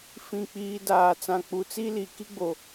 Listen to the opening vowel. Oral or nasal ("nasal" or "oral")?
nasal